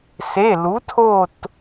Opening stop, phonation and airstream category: aspirated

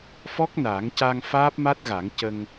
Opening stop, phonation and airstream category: plain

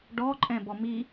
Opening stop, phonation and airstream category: plain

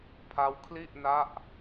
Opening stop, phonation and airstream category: aspirated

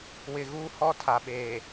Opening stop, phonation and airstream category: aspirated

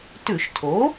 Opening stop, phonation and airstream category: plain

